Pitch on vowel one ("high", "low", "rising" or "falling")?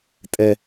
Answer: high